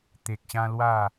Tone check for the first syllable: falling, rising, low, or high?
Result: low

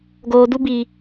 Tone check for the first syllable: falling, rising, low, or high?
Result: low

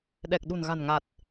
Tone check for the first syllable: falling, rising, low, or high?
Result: low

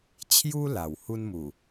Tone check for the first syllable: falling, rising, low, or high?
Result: high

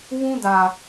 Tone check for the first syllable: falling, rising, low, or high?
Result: high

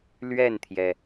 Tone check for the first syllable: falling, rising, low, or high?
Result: falling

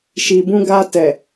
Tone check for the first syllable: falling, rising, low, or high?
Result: low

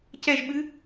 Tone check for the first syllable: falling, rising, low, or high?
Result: falling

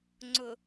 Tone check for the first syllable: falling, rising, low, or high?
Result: low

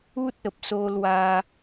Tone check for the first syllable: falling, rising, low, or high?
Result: high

